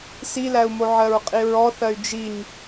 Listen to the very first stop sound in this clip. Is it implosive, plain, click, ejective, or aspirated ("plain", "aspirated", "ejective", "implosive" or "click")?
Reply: ejective